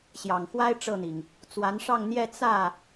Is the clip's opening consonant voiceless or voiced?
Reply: voiceless